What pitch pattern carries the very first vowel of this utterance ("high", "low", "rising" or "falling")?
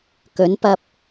rising